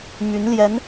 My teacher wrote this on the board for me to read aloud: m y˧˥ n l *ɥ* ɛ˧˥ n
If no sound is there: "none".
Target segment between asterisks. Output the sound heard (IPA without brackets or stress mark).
j